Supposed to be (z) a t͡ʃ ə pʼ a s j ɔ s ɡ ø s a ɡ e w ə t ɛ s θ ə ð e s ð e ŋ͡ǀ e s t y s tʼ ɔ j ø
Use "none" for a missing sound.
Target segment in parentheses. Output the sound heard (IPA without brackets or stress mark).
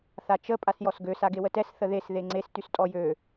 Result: θ